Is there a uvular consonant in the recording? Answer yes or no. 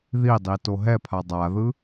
no